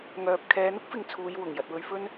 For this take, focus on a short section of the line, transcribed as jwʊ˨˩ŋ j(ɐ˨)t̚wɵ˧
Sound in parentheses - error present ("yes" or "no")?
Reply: no